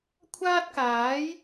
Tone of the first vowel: high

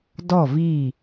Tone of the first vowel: falling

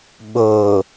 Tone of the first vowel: low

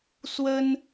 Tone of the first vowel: high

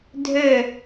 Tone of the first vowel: falling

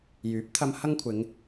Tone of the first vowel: rising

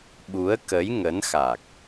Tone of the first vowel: rising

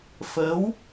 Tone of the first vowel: rising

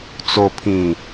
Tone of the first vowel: low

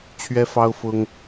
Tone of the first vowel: high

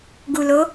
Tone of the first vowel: low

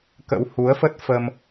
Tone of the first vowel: rising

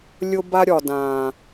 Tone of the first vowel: high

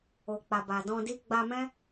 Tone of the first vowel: low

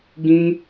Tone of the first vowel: high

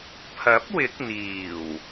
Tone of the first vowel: rising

